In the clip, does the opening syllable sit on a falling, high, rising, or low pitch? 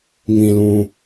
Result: low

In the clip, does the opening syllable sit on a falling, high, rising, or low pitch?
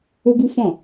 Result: high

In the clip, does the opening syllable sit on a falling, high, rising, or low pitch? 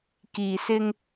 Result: low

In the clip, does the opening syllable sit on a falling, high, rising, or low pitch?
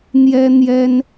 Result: high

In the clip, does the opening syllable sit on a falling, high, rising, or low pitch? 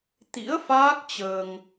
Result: rising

